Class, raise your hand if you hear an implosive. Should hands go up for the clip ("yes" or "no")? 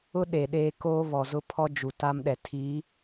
yes